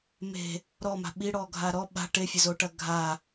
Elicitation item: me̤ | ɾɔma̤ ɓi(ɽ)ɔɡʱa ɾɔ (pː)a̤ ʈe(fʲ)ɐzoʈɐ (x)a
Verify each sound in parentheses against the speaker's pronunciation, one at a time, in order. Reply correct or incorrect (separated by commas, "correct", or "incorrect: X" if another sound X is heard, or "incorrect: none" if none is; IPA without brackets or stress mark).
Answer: correct, incorrect: ɓ, correct, incorrect: ɡʱ